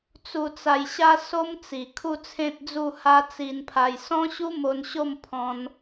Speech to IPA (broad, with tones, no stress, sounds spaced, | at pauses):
t͡s u˨˩ t͡s a˨˩ j ɕ a˧ s o˦ m t͡s i˨˩ kʰ u˥˧ t͡sʰ ẽ˦ t̚ d͡z u˥˧ h a˦ t͡s i˧ n pʰ a˧ j s ɔ̃˦ ɕ u˦ m o˧ n ɕ o˥˧ m pʰ ɔ̃˦ n